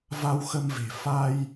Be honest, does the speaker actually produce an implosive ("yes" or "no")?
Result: no